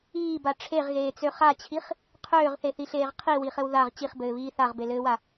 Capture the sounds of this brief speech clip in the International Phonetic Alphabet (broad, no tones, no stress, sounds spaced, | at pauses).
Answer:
iː b a ʈ͡ʂʰ e ʁ ɣ eː t͡s ø χ a t͡ɕʰ i χ | qʰ øː ʁ θ e θ i ɬ eː ʁ qʰ i w i χ ɘ w ð a ʁ t͡ɕ i χ b ɘː β iː θ a ʁ b e l ɘː w a